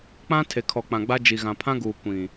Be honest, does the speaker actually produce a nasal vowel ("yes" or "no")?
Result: yes